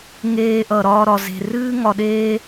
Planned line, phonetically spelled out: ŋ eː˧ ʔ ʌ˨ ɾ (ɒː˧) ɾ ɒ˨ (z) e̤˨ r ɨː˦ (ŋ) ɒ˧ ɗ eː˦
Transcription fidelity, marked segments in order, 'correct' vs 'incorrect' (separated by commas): correct, correct, correct